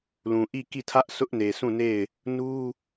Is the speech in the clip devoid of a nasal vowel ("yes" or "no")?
no